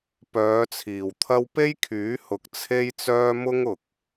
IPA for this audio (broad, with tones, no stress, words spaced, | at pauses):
pœː˨˧t͡sʰiː˨˩wt̪ʰɐ˥w pe˥jkʰyː˨˥ hʊ˨k̚t͡sʰe˥jt͡sœː˥ mʊ˥ŋʊ˨k̚